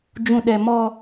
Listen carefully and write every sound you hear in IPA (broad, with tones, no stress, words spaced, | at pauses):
d͡ʒũ˨ɗɛ˨ mɔ˦